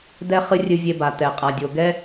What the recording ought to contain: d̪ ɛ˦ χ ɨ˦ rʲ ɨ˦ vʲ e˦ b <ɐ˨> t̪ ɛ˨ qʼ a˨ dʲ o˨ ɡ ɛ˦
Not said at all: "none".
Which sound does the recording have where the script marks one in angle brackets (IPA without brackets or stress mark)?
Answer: a˨